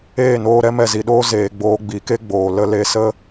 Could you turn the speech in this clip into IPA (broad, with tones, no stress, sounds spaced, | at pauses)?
eː˦˨ n oː˧ ɾ ɛ˦ m ɛ˨ z i˨ ɗ oː˦ z eː˨ ɡ͡b oː˧ ɡ͡b i˨˦ k e˦ ɡ͡b oː˨ l ə˧ l e˧ s ə˦